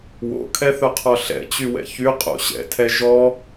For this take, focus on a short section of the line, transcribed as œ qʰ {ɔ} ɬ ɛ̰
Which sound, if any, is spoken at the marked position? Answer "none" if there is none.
ɔ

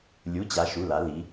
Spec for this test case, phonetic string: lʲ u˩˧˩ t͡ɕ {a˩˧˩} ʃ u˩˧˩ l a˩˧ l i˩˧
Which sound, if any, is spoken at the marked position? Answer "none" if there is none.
a˩˧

